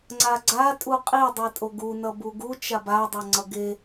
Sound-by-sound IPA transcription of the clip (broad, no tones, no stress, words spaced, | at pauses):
ŋ͡ǀaɡ͡ǀa tʼuqʼi dˤitʼoɡu nʌbuɡu t͡ʃaba dˤʌŋ͡ǀʌɡe